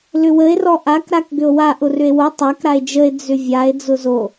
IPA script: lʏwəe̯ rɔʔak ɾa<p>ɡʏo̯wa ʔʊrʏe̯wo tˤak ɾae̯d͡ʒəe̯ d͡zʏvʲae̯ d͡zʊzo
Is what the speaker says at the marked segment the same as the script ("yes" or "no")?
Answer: no